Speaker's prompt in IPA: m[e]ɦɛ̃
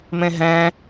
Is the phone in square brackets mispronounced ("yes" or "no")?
yes